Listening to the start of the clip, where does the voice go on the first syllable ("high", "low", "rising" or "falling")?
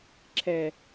low